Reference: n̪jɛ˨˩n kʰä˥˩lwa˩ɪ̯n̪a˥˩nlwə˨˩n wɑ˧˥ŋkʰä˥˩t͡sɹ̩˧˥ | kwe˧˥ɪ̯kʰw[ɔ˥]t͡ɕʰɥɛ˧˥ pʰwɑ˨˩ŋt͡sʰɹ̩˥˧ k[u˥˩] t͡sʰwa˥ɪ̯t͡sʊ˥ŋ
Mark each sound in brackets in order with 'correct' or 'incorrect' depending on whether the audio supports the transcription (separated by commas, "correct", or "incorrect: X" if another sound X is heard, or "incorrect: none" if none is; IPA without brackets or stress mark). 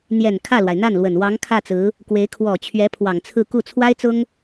incorrect: ɔ˨˩, correct